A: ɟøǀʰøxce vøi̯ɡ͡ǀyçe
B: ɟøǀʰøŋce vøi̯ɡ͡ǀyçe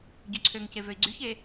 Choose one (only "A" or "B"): B